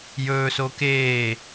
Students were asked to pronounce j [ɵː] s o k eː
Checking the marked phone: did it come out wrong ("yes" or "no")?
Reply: no